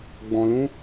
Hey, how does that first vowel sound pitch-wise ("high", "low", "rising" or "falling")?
low